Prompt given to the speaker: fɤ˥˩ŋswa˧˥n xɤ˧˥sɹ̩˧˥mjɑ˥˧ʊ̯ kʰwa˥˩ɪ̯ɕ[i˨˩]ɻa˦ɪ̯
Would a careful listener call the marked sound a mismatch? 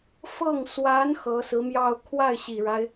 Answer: no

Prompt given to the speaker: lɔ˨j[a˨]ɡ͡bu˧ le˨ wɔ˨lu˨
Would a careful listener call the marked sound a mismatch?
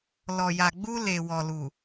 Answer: no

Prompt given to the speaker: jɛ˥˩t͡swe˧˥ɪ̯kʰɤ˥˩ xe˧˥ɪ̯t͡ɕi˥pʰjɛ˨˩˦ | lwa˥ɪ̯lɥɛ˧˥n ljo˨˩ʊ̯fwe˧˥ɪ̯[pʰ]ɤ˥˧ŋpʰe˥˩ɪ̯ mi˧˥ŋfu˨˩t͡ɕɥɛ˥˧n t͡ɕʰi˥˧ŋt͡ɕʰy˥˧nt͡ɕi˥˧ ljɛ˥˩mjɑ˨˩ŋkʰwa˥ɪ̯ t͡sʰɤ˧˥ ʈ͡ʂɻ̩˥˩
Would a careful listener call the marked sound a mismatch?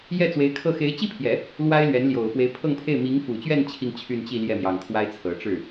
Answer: no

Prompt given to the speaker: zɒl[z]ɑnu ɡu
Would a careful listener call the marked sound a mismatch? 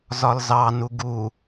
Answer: no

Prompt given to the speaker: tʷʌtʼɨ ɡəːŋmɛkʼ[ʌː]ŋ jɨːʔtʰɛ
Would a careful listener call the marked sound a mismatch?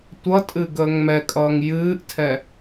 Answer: no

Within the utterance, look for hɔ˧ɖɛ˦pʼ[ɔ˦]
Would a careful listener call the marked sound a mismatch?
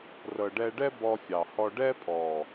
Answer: yes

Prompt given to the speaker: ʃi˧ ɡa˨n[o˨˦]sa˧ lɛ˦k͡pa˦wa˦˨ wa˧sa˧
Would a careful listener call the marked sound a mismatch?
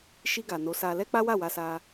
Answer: no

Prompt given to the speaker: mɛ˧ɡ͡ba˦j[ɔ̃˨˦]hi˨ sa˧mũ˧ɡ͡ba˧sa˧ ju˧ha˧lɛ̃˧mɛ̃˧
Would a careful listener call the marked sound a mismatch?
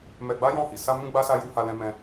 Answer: yes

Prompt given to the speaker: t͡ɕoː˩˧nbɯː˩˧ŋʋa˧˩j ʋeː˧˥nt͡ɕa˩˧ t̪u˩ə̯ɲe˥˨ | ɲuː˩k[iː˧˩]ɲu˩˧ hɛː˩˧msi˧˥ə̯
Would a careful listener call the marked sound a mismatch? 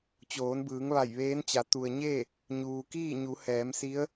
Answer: yes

